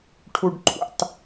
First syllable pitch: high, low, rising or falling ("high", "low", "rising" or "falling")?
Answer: low